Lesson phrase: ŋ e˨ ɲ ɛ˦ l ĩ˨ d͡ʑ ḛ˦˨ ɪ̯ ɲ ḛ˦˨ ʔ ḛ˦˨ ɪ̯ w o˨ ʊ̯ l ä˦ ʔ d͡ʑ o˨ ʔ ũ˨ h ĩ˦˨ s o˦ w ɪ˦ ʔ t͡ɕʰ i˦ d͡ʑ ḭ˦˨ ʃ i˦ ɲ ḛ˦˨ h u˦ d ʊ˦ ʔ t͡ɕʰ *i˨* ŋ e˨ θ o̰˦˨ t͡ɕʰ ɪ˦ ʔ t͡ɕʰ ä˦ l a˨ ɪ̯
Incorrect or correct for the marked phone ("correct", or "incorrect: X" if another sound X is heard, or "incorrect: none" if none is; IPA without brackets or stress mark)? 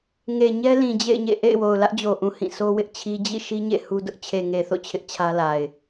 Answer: incorrect: e˨